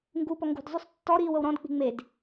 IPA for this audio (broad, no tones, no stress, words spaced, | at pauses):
ŋɡupɔ ŋɡṳdzˤʉsˤ tːɔɾiːw ɤwɾɔ̃dk͡pi̤ ŋ͡med